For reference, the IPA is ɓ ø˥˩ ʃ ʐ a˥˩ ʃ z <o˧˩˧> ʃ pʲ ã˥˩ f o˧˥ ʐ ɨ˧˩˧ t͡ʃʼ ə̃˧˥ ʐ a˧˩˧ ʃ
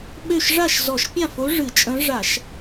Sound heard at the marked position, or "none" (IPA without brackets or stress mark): ɔ˧˩˧